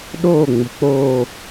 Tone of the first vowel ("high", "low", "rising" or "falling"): falling